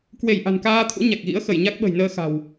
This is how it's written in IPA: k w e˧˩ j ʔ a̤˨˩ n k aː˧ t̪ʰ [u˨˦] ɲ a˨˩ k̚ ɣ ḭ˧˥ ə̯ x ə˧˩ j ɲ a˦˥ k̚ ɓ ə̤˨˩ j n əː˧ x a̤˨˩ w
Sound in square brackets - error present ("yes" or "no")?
yes